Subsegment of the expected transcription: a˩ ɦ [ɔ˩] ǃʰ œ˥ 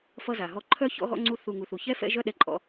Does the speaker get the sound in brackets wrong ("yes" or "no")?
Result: yes